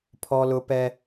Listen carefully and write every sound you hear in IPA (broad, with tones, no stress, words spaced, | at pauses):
pʰɔ˦lʊ˦pɛ˦